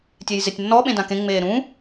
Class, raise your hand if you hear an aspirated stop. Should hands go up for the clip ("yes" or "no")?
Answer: no